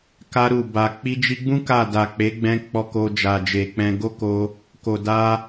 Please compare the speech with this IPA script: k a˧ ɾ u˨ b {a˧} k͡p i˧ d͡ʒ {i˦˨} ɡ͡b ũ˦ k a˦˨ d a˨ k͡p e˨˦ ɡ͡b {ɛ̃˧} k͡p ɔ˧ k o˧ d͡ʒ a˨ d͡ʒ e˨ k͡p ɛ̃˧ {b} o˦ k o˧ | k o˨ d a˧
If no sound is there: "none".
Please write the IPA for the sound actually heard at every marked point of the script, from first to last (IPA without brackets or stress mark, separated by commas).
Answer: a˨, i˧, ɛ̃˧, ɡ